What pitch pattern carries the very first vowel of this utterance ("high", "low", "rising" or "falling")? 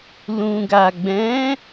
low